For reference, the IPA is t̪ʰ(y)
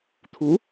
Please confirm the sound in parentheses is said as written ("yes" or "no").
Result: no